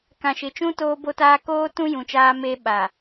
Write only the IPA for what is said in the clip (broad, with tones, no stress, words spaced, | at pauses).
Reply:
kã˨ʃɪ˨t͡ʃũ˦ toː˦bo˦taː˦ koː˦tũ˦ jũ˨t͡ʃaː˦meː˦ ɓa˨